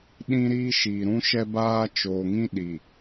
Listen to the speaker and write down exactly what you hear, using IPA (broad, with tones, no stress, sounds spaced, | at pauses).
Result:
ɗ ĩ˦ ɾ iː˦ ʃ iː˨ ɾ ũ˦ ʃ ɛ˦ b aː˦ t͡ʃ oː˨ ŋ ĩ˦ ɗ i˨